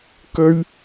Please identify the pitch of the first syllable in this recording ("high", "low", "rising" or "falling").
high